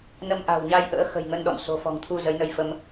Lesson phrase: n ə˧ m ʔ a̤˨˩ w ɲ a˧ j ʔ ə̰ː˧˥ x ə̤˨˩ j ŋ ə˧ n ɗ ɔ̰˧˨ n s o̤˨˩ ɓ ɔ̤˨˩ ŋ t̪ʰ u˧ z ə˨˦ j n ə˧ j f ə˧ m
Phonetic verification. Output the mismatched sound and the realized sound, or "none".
ɓ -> f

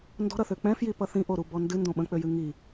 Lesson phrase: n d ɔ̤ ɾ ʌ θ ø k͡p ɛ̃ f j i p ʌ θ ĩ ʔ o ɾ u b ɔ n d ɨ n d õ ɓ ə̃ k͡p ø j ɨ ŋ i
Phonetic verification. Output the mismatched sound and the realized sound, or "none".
none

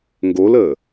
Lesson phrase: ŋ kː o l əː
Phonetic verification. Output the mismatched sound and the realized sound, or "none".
kː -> ɡ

